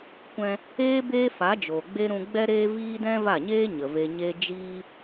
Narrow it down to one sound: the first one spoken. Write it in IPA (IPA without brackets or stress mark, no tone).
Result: kʷ